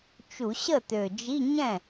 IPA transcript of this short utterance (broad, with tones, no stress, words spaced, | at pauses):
t͡ʃu˧˩˧ɕə˥˩t̪ø˨˩d͡ʒi˧˥˧ ɲɛ̃˥˩